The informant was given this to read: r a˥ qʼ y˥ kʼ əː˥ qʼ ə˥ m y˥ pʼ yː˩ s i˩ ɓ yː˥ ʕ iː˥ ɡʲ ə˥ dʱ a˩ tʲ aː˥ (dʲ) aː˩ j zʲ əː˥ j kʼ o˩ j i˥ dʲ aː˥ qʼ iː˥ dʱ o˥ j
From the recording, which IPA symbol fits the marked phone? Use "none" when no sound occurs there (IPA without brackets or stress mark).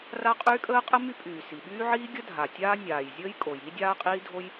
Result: nʲ